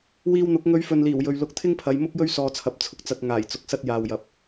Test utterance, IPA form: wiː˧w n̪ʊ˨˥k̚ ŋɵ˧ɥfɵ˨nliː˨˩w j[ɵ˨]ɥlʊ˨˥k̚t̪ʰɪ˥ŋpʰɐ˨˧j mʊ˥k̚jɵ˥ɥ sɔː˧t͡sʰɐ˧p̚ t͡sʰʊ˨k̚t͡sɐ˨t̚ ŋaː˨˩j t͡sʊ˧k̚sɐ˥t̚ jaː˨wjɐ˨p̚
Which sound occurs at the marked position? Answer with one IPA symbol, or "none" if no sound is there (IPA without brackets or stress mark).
ɵ˨